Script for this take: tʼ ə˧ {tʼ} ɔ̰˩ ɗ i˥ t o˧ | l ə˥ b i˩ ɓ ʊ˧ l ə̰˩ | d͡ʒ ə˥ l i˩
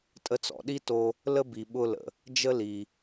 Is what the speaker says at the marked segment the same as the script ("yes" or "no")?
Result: no